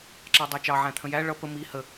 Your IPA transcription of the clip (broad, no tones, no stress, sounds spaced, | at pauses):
ǁ ɑ dˤ æ t͡ʃ ɑ ʕ æ̃ t̪ʰ ə̃ j æ ɭ ʌ p ə m i h ə